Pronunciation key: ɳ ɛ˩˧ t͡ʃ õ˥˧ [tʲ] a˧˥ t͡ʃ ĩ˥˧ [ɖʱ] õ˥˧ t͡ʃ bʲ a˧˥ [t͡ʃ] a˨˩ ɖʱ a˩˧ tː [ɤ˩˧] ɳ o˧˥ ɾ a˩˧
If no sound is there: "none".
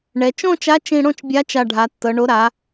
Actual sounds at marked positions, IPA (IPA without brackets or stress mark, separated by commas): t͡ʃ, ɽ, t͡ʃ, ɤ˩˧